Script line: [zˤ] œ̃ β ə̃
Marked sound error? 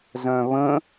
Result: yes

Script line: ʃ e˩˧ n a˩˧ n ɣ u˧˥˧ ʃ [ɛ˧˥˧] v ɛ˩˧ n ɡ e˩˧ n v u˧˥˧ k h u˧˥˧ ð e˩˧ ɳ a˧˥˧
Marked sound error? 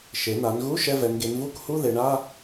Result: no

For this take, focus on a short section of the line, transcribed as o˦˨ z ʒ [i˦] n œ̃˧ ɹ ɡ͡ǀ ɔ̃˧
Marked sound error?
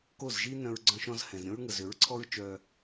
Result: no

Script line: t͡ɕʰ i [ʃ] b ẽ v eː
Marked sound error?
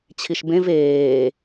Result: no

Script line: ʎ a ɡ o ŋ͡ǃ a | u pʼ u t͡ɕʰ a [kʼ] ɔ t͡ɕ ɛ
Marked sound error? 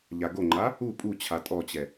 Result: yes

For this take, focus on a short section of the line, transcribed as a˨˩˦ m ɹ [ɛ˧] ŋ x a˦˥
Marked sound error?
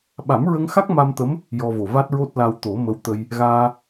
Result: yes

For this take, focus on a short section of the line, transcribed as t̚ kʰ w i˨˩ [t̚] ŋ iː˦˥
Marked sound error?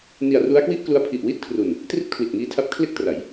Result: no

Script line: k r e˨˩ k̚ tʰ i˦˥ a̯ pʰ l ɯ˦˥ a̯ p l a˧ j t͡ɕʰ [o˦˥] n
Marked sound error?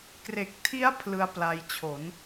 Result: yes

